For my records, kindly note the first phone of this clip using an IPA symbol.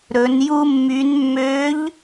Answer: ɾ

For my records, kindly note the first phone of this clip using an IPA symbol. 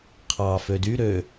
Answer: qʰ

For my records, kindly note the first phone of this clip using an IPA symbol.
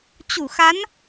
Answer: t͡ɕ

